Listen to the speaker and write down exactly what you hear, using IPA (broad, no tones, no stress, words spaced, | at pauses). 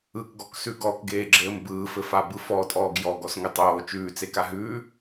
ɯkɡɔksʉ ɡɔkɡeːɡ͡ǁɘːm bɯːfɘfabɯ fɔtʼɔːɡ jɔɡɔsŋɘ tˤoː t͡ʃʉːt͡seka ɦʉː